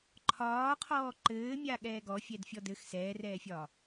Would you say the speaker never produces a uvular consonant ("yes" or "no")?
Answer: no